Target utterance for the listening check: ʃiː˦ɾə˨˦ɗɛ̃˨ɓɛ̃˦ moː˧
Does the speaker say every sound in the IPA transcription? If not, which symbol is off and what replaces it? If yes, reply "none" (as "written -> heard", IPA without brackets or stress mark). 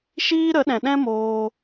ɓ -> ɗ